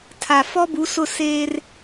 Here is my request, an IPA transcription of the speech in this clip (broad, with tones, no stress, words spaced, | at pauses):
tʰa˨ fɔ˦bu˨˦sʊ˦˨ seː˦r